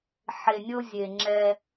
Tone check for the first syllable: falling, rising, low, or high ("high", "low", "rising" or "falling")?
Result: low